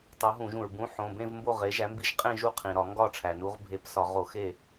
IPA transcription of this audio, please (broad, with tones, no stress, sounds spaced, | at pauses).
tˤ o˨˥ ɦ ũ˧˩˧ ʒ ũ˩ ɹ b ũ˨˥ ħ õ˩˧˩ b ẽ˥˧ v m b o˥˩ ʁ e˨˥ ʒ æ˨˥ m b i˥˩ ʒ qʼ ẽ˥˧ ʒ u˥˩ qʰ ĩ˩ ɾ ɒ˧˩˧ ŋ ɡ ɒ˥˩ ʈ͡ʂʰ æ˩ n u˨˥ ʁ bʱ e˧˩˧ p s ɒ˧˩˧ ʁ o˧˩˧ x e˥˩